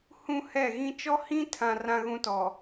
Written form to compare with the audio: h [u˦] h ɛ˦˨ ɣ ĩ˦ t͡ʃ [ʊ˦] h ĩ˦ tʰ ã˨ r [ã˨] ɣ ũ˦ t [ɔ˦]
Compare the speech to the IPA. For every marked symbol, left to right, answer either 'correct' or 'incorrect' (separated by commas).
incorrect, incorrect, incorrect, incorrect